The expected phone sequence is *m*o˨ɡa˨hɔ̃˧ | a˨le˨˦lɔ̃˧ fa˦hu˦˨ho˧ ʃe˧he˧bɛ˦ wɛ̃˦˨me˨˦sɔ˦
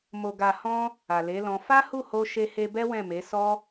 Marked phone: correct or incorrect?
correct